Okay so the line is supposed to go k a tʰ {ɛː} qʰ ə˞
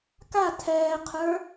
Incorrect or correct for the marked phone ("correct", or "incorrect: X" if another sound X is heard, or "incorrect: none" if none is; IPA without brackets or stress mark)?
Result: correct